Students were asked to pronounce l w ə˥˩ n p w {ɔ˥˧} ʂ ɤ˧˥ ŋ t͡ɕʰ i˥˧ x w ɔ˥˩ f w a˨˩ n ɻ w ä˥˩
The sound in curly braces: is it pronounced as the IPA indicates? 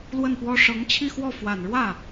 no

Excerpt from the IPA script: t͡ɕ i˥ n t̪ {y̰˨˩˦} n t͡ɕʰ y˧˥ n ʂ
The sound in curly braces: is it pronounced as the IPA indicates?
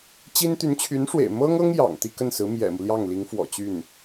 no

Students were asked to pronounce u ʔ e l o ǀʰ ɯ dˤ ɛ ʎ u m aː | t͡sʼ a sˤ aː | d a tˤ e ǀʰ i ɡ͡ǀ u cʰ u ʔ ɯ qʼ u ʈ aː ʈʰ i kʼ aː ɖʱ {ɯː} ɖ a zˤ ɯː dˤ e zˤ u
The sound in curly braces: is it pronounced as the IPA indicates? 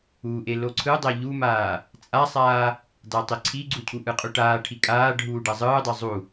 no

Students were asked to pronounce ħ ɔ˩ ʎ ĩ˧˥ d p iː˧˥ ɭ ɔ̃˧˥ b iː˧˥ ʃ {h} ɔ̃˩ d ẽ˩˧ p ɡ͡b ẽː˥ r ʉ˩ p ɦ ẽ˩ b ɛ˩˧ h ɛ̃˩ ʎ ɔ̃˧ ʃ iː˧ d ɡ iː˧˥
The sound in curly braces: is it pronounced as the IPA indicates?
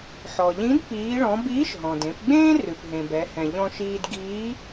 no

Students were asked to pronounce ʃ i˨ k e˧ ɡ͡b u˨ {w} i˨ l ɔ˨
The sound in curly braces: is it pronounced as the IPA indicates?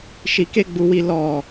yes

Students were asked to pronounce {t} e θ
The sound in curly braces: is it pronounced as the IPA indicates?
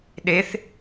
no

